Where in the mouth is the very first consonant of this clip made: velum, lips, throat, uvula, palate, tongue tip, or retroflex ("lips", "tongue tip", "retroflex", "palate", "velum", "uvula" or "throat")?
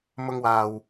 lips